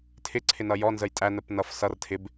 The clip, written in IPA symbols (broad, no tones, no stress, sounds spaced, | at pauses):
tʰ ɪ ǀʰ ɪ n ʌ j ɔ n z ə j tʼ æ n ə p n ʌ f s ʌ r tʰ ɪ b